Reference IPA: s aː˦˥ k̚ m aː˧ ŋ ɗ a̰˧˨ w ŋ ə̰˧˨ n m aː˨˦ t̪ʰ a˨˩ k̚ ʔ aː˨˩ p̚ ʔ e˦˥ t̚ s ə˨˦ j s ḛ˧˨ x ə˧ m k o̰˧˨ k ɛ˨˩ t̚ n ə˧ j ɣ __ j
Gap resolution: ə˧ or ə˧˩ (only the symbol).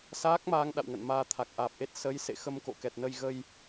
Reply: ə˧